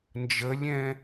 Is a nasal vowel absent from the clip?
no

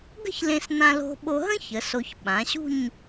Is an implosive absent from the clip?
no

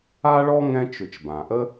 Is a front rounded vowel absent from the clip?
no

